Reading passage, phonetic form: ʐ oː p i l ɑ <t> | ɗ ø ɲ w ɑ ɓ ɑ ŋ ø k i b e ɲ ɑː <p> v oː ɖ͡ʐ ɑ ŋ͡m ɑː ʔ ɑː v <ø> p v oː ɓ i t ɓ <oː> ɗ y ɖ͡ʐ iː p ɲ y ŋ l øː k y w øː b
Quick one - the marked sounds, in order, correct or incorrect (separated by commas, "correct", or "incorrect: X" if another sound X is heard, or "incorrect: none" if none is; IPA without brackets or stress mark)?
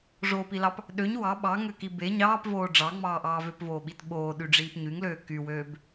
incorrect: p, correct, correct, correct